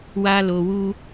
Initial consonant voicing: voiced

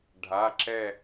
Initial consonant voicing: voiced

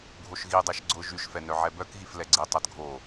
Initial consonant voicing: voiced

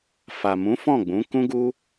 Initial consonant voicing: voiceless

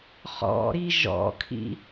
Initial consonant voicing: voiceless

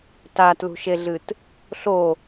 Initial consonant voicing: voiceless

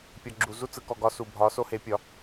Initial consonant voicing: voiceless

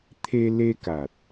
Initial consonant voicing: voiceless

